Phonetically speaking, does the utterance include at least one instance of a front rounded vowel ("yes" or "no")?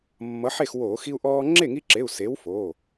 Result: no